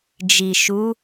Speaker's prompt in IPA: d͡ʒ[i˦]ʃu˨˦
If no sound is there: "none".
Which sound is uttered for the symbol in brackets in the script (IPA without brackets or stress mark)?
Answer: i˨